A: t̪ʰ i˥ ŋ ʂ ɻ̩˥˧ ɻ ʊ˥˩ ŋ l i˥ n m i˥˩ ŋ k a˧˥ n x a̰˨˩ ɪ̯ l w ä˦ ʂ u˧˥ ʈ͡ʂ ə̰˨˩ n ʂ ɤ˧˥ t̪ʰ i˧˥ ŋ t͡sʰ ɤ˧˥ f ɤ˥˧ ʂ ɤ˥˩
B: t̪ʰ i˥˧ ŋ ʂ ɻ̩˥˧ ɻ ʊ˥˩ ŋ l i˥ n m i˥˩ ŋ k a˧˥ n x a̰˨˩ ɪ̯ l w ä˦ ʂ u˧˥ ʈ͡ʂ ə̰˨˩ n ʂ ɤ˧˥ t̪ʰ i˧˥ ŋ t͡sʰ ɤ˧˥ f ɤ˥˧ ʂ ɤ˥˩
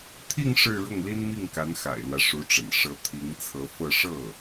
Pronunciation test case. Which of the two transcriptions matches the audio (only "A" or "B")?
B